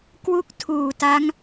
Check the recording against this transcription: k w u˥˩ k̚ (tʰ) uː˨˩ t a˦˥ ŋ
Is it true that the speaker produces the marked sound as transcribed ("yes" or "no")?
yes